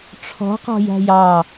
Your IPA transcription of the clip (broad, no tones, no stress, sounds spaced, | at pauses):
ʈ͡ʂʰ ɔ̤ q ɔ̤ j æ̤ j ɑ